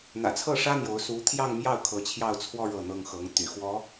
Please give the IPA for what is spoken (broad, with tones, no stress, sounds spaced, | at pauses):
n̪ ä̰˨˩ t͡sʰ ɤ˥˩ ʂ ä˥ n̪ j o˧˥ ʊ̯ s u˧˥ t̪ʰ j ɑ˥˧ ŋ m j ɑ˥˩ ʊ̯ kʰ ɤ˧˥ t͡ɕʰ j ɑ˥˧ ʊ̯ t͡sʰ w ɔ˥˧ ɻ ɤ˥˩ n̪ ɤ˥ ŋ x ɤ˧˥ ŋ t̪ y̰˨˩ x w ɔ˧˥